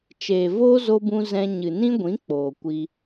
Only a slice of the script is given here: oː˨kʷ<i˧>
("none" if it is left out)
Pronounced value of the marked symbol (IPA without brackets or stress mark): i˧